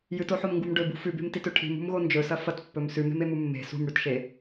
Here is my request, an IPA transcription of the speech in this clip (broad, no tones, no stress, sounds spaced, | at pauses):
j ɨ t o ħ o m ŋ ɡ u m ɖ ɵ b ṳ f ʉ b e̤ m t i t ɵ ʈʰ i̤ m ṳ m ɣ o n d͡ʒ ɵ s ɐ f ɐ t pː ɵ m s ʉ m e̤ m e m u mː e̤ s ṳ m ɽ ʉ t ʃ e